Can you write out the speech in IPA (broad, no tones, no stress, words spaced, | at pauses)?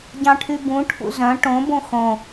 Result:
ɟɑ̃ʈʰybũ ʈʰṵzœ̃ ʈõ bõxõ